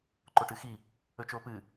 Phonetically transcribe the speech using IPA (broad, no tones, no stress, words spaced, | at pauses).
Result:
ǃoʈɨxi | ɵt͡ʃoːpɨ